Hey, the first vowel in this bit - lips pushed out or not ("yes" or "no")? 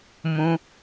yes